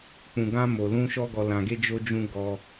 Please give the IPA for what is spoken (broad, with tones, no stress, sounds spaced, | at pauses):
k͡p ũ˨ ɡ ã˧ m o˨ l ũ˧ ʃ ɔ˦ ɡ ɔ˧ l ã˧ ɡ e˦ d͡ʒ o˦ d͡ʒ ũ˦ ɡ ɔ˧